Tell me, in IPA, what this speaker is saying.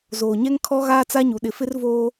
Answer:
zoː˨ɲɛ˦ŋ kʰɔ˦ɣaː˦t͡sa˦ɲu˨ ɗɪ˨fɪ˦r voː˦

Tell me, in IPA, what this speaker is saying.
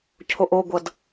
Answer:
cʰoʔoɡʷʌd

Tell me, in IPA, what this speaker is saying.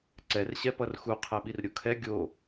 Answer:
ǀɛr ɕɛpʌrxu qʰɛɓirɾʲokʰɛ ɡʲo

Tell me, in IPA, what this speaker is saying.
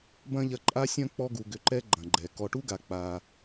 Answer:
bɐ̃˥ʎɐ˦ǃʼa˥sʲɐ̃˥ k͡pɔ˦ɡu˨ɡʏ˨ǃɛ˦ ɡ͡ǃɐ̃˩ɡ͡ǃɛ˩ kɔ˨ʈu˥ ɡa˨k͡pa˨

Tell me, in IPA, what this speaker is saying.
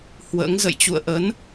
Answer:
hwə̰ː˧˥ŋzə̰˧˨j t͡ɕṵ˧˨ə̯ʔə˨˦n

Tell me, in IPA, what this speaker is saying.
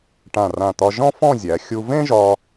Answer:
ʈã˧˩rã˧˩t̪ɒ˧ ʒɔ̃˥fɔ̃˥˧zʲæ˩˧ xʲu˧vẽ˥ʒɒ˧

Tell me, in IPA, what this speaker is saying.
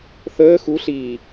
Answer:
θəː xuɬiː

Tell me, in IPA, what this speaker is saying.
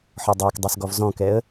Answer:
ħɔdˤakdˤas ɡɔvzɔ̃kɛə̯

